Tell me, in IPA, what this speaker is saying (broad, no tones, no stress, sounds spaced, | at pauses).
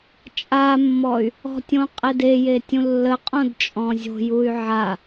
t͡ʃʼ a mː ɔ y̯ | ɔ̤ tʲ õ qʼ e d e j e tʲ ũ lː ə qʼ õ d t͡ʃʼ ɔ̃ zʲ o̤ j u y̯ ʕ a